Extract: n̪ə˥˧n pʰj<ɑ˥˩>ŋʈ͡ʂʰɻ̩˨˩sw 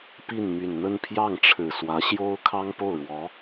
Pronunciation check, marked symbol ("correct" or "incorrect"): correct